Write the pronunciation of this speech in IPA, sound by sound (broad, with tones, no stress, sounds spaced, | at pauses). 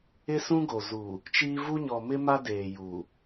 ɪ˦ s ũ˦ ɡ o˨ z uː˨ | t͡ʃ iː˦ v u˦ ɲ ɔ˨ m ɪ˦ m a˦ d eː˨ j uː˨